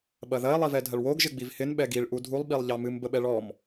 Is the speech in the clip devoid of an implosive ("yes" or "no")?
no